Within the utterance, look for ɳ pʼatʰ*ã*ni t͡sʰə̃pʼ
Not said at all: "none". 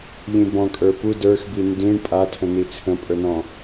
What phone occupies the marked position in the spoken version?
ə̃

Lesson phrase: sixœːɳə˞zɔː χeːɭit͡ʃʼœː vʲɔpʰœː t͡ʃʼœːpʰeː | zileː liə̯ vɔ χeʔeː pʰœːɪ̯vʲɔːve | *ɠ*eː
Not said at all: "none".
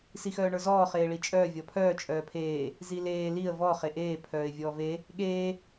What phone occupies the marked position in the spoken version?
ɠ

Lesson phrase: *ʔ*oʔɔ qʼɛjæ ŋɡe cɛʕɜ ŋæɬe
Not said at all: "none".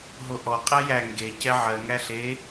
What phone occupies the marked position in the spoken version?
ɦ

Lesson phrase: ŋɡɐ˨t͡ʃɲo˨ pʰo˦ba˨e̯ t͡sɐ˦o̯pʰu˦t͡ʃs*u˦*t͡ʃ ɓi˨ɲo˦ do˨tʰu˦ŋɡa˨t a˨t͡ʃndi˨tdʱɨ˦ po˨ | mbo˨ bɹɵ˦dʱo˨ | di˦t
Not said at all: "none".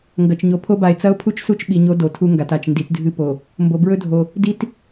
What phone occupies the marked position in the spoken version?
u˦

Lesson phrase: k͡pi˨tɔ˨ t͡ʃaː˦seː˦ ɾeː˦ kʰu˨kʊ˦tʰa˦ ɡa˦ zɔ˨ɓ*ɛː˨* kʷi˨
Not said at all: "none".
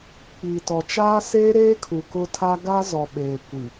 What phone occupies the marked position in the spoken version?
eː˨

